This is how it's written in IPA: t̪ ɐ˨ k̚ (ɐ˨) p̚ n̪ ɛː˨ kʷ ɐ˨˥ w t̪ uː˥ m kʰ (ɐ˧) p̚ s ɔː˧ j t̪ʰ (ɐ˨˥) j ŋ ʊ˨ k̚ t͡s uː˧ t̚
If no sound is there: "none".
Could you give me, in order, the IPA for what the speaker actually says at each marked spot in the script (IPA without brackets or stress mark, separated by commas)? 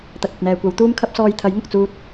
ɐ˨, ɐ˥, ɐ˨˥